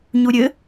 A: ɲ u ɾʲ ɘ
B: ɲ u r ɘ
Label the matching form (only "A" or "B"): A